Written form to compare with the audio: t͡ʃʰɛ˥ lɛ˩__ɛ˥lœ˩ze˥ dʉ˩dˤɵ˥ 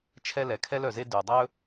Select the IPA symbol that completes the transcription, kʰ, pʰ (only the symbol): kʰ